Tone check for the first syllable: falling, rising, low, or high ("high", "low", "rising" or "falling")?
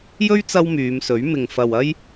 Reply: high